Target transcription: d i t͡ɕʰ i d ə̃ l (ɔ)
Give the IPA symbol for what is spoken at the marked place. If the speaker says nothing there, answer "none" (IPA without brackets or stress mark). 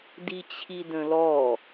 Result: ɔ